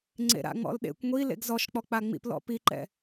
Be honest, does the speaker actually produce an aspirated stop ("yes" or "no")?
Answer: no